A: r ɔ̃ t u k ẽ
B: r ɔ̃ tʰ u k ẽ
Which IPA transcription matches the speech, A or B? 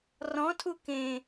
B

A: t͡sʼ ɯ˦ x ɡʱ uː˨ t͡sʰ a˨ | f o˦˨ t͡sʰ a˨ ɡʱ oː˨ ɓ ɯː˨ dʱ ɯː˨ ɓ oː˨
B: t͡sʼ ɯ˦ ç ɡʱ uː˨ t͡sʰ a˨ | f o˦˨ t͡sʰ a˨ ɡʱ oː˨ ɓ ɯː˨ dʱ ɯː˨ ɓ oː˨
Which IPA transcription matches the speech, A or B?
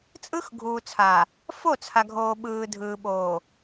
A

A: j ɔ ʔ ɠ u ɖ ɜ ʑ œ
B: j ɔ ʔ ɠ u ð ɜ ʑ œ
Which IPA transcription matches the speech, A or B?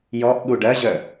A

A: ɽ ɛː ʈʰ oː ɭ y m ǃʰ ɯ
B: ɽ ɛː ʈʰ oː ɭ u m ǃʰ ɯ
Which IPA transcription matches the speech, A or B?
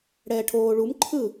B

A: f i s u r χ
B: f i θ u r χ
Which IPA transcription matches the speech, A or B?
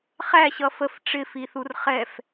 B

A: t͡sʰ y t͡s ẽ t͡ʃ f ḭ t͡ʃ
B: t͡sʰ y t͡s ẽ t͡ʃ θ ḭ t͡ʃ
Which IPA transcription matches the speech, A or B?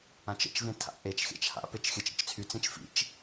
A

